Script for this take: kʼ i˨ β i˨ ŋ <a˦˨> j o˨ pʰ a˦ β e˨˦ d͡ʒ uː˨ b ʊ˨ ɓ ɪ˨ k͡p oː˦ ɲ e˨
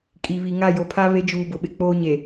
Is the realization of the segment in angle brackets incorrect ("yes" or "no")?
no